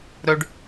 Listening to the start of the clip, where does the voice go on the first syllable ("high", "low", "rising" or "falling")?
high